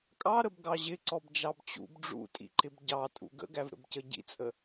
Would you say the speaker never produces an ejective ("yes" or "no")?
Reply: no